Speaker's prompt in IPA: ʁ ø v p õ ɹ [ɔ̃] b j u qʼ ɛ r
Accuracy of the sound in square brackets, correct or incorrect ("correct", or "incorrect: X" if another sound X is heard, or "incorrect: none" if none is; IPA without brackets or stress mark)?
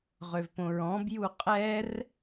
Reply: correct